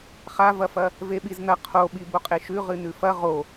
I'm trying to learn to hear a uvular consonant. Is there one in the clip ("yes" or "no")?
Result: yes